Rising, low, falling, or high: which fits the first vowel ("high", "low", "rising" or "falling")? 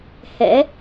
rising